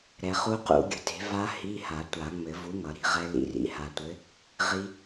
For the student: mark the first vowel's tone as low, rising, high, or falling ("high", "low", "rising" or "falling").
low